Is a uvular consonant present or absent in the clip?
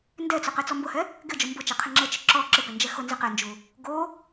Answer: present